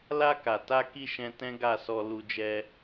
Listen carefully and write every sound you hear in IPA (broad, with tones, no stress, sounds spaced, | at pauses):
l a˧ k a˨ t a˧ k i˧ ʃ ɛ̃˧ t ɛ̃˦ ɡ a˦˨ s ɔ˧ l u˧ d͡ʒ ɛ˧